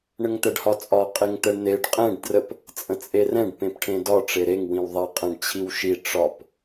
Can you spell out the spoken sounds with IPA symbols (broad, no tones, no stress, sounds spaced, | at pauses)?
ɳ ə ŋ t̪ ɛ ɖ h ɒ t͡sʼ ɒ qʼ e ŋ t̪ ɛ ɳ n̪ e ɖ qʼ ɛ̃ ɖ d r ə p | t͡sʼ ə̃ t͡sʼ e r ɛ̃ ɖ p ẽ p ʈʰ ẽ d ɒ ʈ͡ʂ e ɾ e ŋ w ĩ w ðˤ ɛ qʼ ɛ̃ ɖ t͡ɕʰ i w ʃ i ʈ͡ʂ ɒ p